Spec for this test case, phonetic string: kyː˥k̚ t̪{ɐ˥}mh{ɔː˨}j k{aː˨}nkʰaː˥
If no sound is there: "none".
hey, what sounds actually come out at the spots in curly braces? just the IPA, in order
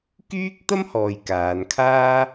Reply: ɐ˥, ɔː˨, aː˨˧

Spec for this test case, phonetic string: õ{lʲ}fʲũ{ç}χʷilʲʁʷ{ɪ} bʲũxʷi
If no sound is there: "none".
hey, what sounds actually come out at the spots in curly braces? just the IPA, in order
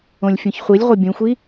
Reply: lʲ, ç, ɪ

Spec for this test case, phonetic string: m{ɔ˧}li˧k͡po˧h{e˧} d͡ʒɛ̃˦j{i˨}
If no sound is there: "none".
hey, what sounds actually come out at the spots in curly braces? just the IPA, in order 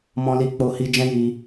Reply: ɔ̃˧, i˧, i˧

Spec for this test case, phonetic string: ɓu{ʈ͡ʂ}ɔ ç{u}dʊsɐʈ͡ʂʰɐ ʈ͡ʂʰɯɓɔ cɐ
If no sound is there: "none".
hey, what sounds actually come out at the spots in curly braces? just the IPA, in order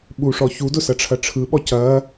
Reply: ʂ, u

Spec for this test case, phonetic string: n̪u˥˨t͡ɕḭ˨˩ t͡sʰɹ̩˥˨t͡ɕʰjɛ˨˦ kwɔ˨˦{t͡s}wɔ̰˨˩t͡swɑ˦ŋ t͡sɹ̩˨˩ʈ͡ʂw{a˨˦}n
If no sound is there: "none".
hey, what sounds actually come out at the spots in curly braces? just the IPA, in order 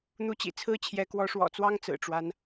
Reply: ʂ, a˦

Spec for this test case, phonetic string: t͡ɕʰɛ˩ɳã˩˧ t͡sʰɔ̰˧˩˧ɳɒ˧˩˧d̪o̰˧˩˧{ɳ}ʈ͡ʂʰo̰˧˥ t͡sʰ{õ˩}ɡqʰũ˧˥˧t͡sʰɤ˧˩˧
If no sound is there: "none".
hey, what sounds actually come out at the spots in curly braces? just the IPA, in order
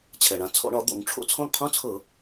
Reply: ŋ, õ˧˥˧

